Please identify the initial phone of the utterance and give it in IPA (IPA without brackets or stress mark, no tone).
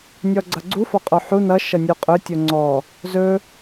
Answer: nʲ